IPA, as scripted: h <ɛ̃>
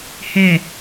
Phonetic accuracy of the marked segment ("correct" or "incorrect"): incorrect